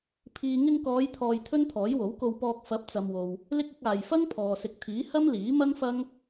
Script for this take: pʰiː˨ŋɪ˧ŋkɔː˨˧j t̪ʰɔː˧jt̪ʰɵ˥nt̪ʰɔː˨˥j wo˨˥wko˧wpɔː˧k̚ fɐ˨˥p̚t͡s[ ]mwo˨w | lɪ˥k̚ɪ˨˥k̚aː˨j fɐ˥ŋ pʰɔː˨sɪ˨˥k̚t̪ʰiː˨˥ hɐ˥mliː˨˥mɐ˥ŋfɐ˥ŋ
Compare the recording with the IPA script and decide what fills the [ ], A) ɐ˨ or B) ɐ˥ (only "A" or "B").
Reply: A